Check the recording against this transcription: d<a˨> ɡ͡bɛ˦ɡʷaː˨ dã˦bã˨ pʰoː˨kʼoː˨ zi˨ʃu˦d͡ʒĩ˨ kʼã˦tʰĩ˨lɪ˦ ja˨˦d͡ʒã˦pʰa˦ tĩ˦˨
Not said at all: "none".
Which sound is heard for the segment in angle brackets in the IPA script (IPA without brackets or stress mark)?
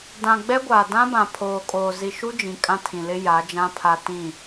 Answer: ã˨